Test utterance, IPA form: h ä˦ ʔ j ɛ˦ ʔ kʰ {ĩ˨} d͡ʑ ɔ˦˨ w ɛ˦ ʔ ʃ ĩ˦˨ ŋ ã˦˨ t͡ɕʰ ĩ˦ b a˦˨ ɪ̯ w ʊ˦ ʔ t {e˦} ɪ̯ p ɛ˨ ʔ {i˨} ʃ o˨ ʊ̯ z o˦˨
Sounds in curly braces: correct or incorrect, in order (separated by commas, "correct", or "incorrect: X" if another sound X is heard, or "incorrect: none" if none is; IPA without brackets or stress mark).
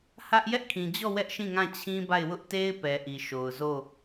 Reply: correct, correct, correct